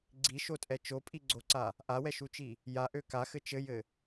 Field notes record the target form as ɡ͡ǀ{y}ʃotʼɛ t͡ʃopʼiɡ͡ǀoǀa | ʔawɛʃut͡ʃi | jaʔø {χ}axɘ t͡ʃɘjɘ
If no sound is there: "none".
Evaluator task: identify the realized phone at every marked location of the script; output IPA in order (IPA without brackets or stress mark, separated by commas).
i, k